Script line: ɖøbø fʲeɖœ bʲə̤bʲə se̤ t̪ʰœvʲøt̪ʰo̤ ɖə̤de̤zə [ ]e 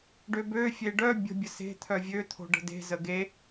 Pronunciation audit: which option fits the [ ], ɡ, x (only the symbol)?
ɡ